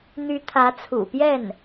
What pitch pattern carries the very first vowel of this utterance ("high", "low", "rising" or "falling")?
rising